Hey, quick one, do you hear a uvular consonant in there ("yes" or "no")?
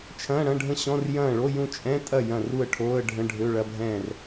no